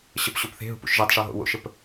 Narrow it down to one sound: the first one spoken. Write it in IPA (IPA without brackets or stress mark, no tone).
ɕ